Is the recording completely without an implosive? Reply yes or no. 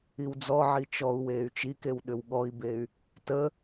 no